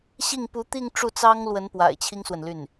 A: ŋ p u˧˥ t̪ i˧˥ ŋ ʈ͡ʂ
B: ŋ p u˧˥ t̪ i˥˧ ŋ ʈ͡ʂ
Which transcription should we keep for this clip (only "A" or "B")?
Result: B